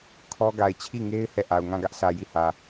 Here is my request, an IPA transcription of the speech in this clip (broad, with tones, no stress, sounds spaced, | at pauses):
kʰ ɔ˦ ɡ a˨ ɪ̯ t͡ɕʰ i˦˨ ŋ e˦ ɪ̯ h ɛ˦˨ ʔ a˨ ʊ̯ ŋ ã˦˨ ɡ ä˦ ʔ sʰ ä˨ j i˦˨ h ä˨